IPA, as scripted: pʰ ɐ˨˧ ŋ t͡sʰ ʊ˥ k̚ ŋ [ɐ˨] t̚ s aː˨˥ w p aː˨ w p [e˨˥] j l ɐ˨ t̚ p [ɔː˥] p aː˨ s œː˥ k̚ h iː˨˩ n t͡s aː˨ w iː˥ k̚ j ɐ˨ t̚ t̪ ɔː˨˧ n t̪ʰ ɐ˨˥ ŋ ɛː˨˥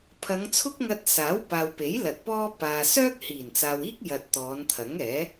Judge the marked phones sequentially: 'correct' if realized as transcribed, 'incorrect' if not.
incorrect, correct, correct

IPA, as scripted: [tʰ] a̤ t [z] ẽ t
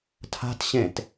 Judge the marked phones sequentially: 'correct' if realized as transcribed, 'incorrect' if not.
correct, incorrect

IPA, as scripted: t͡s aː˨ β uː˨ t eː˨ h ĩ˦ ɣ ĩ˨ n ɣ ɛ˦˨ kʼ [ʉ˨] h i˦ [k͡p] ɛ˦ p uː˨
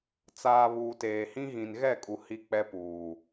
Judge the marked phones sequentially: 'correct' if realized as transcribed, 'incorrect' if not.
incorrect, correct

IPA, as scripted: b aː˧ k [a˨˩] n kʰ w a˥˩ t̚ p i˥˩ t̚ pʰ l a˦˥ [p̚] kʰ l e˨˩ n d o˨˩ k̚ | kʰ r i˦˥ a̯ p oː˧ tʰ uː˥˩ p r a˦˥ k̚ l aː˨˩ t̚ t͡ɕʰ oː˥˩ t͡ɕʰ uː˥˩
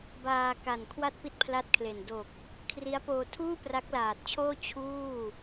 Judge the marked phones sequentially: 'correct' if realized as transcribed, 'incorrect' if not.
correct, incorrect

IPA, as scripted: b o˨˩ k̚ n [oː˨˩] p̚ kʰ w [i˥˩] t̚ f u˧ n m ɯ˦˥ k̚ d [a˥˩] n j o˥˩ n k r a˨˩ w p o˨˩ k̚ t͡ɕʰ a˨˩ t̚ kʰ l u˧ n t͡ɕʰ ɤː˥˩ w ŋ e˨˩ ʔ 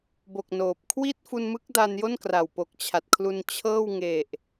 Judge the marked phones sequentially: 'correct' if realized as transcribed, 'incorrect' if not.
correct, correct, incorrect

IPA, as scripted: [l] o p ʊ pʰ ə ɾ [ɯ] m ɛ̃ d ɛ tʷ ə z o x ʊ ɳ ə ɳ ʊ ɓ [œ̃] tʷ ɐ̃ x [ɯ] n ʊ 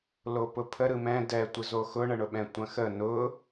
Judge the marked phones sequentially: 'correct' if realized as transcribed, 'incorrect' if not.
correct, correct, incorrect, incorrect

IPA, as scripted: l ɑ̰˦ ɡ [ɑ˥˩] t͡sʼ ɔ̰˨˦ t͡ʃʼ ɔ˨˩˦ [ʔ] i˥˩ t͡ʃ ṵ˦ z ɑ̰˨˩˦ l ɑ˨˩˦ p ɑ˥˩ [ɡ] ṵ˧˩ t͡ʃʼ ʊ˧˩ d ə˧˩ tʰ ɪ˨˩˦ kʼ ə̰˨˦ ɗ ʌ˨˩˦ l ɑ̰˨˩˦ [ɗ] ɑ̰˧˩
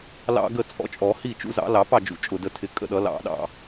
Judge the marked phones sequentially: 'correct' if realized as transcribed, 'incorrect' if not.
incorrect, incorrect, incorrect, correct

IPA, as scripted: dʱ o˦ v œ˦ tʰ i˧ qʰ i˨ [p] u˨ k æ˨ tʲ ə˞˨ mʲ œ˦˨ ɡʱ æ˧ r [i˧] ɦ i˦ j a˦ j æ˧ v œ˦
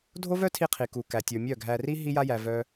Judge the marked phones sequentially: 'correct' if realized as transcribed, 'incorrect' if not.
incorrect, incorrect

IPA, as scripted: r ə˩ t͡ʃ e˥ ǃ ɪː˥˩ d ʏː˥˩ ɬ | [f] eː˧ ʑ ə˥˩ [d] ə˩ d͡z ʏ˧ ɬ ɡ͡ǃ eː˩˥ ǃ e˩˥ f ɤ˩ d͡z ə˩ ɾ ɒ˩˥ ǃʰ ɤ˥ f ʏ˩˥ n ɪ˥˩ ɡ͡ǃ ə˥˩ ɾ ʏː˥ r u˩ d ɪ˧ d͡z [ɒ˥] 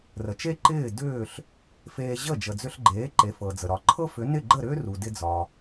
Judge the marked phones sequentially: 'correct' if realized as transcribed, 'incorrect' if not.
correct, incorrect, incorrect

